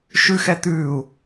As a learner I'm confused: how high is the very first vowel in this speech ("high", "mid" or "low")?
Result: high